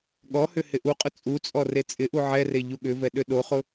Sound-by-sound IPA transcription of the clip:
ɠ ɔ h ʏ h ɪ ʔ u qʼ ʊ t͡sʼ u t͡sʼ ɔ r e t͡sʼ ɪ ʔ u ʕ ɛ r e ʎ u ɠ ʏ v ɛ ɗ ʏ ɗ o χ ʊ

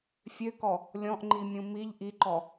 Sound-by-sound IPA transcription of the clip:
fʲ ø k ɔ | lʲ ɔ̃ ʔ ŋ͡ǃ i mʲ ũ m i ʎ ʔ i ǃ ɔ

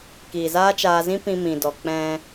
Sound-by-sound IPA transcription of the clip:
k iː˨ z aː˦ t͡ʃ aː˧ z ĩ˦ p ĩ˧ m ĩ˨ d ɔ˨ k͡p ɛ̃˧

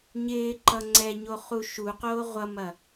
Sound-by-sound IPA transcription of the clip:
ɲ ɪː ǃ ʌ ŋ͡ǀ ɛ ɲ o χ u ʃ u q oː ʁʷ ʌ m ɐ

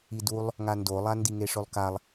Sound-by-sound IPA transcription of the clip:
i d u lˠ | ŋ a n d o lˠ a n d i ŋ e ʂ ɵ lˠ k a lˠ

